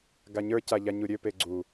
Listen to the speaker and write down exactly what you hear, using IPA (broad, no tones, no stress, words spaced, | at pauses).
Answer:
ɡaɲə˞ caʎaɲuɾʲø peɡ͡ǀu